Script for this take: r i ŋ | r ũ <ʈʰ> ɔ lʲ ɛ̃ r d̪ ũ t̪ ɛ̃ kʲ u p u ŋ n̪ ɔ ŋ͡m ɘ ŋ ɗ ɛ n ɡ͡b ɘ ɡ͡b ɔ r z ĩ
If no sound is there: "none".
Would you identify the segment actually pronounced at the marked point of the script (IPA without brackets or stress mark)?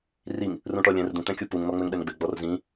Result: ʈ